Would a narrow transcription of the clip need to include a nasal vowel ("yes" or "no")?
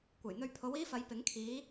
no